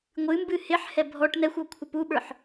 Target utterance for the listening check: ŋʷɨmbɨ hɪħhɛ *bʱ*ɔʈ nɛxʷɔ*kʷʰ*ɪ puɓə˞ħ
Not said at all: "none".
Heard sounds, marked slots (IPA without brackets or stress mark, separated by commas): bʱ, kʷʰ